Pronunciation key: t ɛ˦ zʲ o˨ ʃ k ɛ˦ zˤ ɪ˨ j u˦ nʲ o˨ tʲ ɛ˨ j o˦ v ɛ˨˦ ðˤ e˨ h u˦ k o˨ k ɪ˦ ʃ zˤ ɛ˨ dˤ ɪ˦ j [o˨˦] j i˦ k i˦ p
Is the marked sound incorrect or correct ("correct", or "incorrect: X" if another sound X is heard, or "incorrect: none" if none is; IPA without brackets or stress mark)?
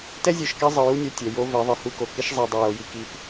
correct